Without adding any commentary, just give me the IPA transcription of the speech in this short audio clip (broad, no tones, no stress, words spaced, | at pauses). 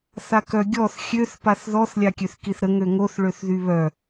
θakœɡʲɔθ xʲøθ paθðɔθ lʲakʲøθkiθɾə ŋøŋoθ ɭøθðyβœ